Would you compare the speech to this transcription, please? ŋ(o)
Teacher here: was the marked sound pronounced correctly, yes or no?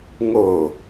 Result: yes